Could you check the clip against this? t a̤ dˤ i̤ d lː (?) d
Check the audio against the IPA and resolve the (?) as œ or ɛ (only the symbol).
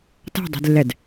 ɛ